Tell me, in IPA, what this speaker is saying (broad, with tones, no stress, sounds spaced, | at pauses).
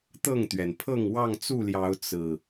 t̪ ɤ˥˨ ŋ t̪ ɥ ɛ˩ n pʰ ɤ˥˨ ŋ w ɑ˥˨ ŋ t͡s u˥˨ l j ɑ˨˦ ʊ̯ t͡s ɹ̩˨˩